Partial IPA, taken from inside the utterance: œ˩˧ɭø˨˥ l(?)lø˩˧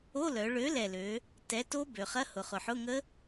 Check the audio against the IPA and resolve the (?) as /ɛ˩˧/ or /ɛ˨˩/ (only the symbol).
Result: ɛ˨˩